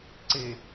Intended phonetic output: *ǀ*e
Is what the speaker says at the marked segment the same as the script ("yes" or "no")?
yes